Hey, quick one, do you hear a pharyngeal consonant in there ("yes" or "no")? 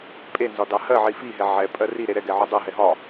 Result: yes